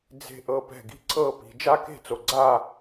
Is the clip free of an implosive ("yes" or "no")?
yes